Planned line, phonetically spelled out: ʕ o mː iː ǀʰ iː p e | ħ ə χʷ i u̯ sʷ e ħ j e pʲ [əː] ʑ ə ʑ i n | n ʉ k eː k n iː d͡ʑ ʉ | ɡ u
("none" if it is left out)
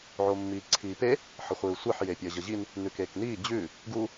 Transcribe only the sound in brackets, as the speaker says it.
əː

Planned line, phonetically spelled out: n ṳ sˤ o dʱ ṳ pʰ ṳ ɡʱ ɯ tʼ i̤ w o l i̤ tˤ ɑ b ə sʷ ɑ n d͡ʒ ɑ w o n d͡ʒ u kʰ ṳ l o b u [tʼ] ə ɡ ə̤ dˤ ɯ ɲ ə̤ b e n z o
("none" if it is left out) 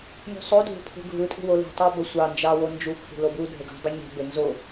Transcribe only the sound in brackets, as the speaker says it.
dʱ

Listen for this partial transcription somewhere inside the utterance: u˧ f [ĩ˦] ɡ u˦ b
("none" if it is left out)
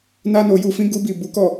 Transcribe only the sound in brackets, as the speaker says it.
ĩ˦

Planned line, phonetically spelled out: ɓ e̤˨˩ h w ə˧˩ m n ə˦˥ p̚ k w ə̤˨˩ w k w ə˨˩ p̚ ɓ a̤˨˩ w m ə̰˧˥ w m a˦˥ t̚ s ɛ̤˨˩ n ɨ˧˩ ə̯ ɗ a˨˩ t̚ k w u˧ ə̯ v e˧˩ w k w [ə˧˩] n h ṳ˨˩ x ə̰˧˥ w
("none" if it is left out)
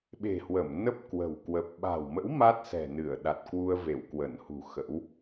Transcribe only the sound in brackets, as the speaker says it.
ə˧˩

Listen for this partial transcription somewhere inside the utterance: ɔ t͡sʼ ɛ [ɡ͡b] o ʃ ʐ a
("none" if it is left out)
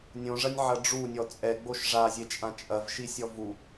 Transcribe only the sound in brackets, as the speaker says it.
ɡ͡b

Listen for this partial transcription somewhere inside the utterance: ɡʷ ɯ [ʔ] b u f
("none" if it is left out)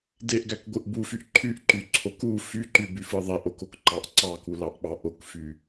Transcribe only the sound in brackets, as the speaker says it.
ʔ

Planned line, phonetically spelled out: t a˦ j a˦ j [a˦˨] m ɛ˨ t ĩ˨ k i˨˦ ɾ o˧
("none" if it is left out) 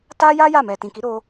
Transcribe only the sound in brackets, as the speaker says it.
a˦˨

